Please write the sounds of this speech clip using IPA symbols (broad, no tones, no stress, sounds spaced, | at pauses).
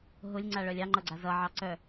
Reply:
ɦ ʊ lʲ ŋ͡ǀ a ɭ œ lʲ ɑ ŋ͡ǃ ʌ ɡ͡ǀ a z ʌ ʕ ɑ ǀ œ